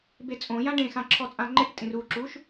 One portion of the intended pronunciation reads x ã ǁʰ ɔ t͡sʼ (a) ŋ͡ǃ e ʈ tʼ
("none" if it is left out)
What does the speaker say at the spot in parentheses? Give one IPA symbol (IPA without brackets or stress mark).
ã